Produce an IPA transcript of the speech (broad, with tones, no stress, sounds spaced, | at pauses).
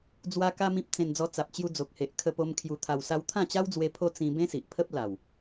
d͡z w a˦ k a˦ m ĩ˦ p̚ t͡s ẽ˧ n d͡z ɔ˧ t͡s a˨ p̚ t͡ɕ j u˧ d͡z o˨ k̚ h e˨ ʔ kʰ ə˧ p o˧ m kʰ j u˧ t̪ʰ a˧ w s a˦ w t̪ʰ ã˥˧ t͡ɕ a˦ w d͡z w e˧ pʰ o˦ t͡s ĩ˧ b ẽ˦ s i˨ ʔ pʰ ə˦ p̚ l a˨˩ w